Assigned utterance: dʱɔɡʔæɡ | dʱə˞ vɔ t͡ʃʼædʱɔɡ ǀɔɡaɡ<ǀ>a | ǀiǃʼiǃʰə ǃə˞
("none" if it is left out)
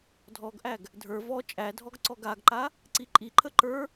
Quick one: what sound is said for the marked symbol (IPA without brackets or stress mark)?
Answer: ǃ